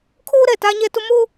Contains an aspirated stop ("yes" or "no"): yes